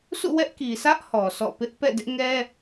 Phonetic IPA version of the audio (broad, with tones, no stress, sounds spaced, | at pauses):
sʰ ṵ˦˨ w ɛ˦ ʔ k i˨ sʰ ä˦ ʔ h ɔ˨ sʰ ɔ̰˦˨ p ɪ˦ ʔ p ɛ̰˦˨ d ɪ˦ ʔ ŋ ɛ˦